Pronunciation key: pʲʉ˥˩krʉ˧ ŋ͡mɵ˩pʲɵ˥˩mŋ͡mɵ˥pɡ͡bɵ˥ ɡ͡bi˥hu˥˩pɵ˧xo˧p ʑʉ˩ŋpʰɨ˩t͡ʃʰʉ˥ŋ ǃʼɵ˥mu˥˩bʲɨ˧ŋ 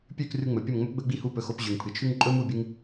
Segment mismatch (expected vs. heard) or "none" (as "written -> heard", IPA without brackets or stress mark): none